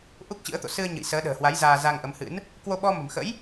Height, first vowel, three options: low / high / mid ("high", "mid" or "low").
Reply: high